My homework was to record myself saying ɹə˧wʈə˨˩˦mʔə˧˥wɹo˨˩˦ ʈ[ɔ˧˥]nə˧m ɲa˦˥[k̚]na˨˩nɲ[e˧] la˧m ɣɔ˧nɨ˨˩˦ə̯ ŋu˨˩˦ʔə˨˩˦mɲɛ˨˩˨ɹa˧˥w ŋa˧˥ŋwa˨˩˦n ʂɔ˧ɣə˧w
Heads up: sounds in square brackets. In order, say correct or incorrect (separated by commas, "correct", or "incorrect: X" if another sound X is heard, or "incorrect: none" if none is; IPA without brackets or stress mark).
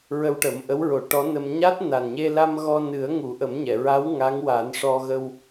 correct, incorrect: t̚, correct